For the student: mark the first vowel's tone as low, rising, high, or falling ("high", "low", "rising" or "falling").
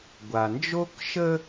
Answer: low